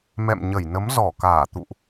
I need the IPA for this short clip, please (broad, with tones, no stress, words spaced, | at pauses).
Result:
mɛ̰˧˨mɲə˧˩jnə˨˦m zɔ˧˩kaː˧˩t̪ṵ˧˨ʔ